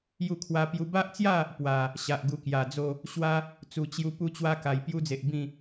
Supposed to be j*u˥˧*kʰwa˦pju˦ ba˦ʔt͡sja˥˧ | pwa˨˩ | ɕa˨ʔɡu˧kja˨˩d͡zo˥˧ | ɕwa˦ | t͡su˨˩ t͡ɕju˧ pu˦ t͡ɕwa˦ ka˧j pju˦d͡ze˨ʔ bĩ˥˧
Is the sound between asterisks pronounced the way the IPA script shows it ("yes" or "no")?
yes